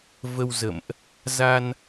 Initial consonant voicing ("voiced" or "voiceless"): voiced